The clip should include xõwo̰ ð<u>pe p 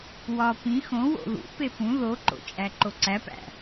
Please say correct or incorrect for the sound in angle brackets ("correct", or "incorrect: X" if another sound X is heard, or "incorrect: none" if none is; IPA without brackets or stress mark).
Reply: incorrect: ṵ